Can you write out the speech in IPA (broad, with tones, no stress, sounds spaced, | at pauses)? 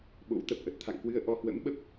ɓ o̰˧˥ w t̪ ə˨˩ p̚ ʔ ə˨˩ t̚ t̪ʰ a̰˧˨ ŋ k w ɨ˧ ə̯ ʔ ɔ˧ h w ə̰˧˥ m ɓ ə˦˥ p̚